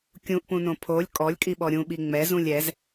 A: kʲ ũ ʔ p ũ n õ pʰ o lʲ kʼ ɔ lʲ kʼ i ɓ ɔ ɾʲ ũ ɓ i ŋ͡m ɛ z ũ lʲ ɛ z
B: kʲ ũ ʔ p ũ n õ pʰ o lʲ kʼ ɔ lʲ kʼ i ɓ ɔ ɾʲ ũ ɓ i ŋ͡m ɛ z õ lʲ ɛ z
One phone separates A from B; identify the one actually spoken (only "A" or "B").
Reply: A